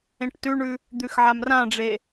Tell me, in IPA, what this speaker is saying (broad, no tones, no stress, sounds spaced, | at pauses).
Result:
ẽ ʈ t ʉ ɳ ʉ | d̪ ʉ x ʕ a m r ã ɖ͡ʐ e